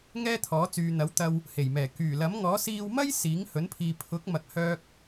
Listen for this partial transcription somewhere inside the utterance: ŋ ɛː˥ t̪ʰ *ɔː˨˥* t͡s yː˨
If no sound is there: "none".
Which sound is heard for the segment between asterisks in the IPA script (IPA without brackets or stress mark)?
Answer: ɔː˨˥